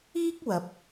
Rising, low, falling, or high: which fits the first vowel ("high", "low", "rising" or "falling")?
high